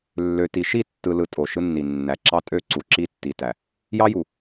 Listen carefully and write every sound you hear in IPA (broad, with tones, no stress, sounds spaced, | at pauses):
lː ø˨ t i˨ ʃ i˦˨ tː ɯ˨ l ɯ˨ tʼ o˨ ʃ ɯ˦ nː i˨ nː æ˨ ǁ ɑ˦ tʼ ø˦˨ ǀ u˨ ǁ i˦ tː i˨ t æ˨ | j ɑ˦ j u˨